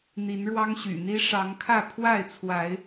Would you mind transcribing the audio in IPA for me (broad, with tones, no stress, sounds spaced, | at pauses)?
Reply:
n̪ i˨˦ n ɻ w ɑ˦ ŋ ɕ y̰˨˩ n̪ i˦ ʂ ɑ˨˦ ŋ kʰ ä˥˨ pʰ w a˥˨ ɪ̯ t͡sʰ w a˨˦ ɪ̯